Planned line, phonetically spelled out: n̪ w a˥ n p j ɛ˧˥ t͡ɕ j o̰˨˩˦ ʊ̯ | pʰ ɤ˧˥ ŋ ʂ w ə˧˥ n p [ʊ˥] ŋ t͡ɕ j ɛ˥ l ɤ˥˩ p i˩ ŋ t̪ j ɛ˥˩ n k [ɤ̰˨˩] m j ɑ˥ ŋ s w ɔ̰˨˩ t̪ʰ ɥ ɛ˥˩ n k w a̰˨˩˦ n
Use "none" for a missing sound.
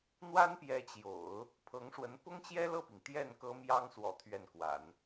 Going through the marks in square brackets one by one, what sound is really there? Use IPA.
ʊ˥, ɤ˥

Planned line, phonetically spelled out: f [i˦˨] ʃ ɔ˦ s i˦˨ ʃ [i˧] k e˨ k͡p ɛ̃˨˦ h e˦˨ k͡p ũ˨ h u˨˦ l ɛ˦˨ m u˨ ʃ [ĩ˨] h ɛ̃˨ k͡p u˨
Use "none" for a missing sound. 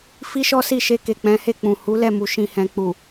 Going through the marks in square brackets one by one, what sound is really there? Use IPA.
i˦, e˧, ĩ˨

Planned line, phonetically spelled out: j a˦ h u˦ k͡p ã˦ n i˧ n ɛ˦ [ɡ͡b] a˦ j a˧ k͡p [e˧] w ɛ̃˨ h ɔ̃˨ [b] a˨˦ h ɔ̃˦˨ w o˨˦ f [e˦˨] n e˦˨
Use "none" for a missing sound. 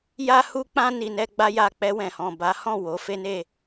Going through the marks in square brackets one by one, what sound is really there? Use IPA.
ɡ͡b, ɛ˧, b, e˦

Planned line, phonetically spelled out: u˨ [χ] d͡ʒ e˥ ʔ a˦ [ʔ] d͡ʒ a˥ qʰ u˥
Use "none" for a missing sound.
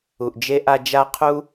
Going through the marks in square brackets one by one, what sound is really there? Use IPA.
ʔ, none

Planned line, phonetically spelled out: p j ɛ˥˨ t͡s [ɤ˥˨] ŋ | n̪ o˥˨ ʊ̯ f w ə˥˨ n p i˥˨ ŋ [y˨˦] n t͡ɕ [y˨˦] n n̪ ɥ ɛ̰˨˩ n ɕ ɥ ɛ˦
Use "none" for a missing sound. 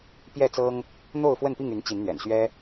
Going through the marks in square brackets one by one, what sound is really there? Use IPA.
ɤ˦, y˨˦, i˨˦

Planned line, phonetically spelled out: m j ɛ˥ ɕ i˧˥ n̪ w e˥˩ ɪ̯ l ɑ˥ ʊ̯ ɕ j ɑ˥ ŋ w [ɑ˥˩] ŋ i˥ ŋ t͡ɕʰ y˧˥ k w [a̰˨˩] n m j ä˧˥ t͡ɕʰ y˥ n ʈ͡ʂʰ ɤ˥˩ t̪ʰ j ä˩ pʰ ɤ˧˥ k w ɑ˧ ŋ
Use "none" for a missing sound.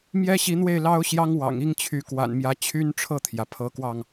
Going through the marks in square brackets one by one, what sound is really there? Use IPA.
ɑ̰˨˩, a̰˨˩

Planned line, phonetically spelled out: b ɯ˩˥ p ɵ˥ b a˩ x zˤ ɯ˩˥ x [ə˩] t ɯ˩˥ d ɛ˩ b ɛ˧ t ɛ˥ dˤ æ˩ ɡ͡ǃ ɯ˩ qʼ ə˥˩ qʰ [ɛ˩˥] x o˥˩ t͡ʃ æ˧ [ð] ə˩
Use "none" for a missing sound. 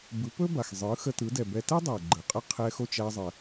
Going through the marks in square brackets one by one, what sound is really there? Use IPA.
ə˧, ɛ˧, zˤ

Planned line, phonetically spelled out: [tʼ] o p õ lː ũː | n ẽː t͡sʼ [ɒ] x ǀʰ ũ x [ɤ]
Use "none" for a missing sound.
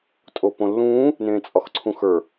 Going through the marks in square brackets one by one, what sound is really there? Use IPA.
tʼ, ɒ, ə˞

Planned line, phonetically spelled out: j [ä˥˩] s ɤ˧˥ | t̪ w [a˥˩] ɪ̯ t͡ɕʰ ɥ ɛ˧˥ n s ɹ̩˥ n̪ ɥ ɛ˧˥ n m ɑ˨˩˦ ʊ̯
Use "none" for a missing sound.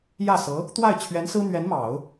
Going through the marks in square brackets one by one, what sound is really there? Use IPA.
ä˥˩, a˥˩

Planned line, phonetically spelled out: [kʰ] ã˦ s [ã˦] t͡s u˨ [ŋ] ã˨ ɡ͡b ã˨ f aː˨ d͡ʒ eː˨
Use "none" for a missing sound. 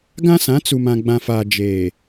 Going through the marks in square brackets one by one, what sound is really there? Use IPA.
ɡ, ã˨˦, m

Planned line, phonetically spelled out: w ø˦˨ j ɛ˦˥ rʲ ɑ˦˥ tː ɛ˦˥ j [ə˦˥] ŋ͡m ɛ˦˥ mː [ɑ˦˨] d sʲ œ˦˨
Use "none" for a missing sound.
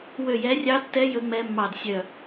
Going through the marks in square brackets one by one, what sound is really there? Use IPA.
ɵ˦˥, ɑ˦˨

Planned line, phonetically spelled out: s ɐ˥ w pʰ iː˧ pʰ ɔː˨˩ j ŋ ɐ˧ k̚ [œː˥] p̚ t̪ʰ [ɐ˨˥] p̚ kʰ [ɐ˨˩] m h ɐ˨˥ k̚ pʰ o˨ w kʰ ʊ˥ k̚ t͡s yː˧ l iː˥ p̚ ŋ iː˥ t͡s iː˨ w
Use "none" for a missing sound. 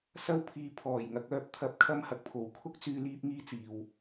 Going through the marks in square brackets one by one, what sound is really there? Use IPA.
œː˥, ɐ˧, ɐ˥

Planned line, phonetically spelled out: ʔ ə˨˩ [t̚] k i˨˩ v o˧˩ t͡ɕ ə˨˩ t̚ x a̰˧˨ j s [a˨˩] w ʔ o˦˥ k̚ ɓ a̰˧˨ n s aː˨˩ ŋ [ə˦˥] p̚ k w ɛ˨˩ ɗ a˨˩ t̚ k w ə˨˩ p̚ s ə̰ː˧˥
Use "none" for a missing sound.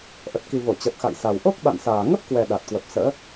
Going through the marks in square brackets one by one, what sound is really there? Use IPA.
t̚, a˨˩, ə˦˥

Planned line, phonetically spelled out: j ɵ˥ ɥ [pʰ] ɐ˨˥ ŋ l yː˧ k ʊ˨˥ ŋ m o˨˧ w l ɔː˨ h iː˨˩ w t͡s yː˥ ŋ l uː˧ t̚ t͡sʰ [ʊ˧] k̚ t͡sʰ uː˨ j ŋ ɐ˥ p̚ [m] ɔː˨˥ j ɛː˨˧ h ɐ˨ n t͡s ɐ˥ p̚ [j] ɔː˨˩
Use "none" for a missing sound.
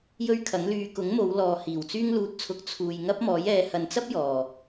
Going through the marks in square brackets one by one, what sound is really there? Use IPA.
kʰ, ʊ˧, m, j

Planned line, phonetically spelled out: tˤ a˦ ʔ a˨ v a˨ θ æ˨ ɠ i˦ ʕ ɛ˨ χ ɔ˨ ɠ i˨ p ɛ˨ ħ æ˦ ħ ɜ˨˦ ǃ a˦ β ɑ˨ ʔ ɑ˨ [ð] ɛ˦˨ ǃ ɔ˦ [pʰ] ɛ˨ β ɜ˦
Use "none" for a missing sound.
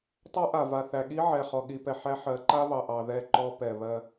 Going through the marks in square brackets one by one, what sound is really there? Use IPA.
ð, p

